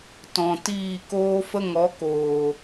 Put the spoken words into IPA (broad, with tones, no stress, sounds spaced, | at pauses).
t ɔ̃˨ t iː˦˨ k oː˦ f ə˦ ŋ ɔ˨˦ k oː˨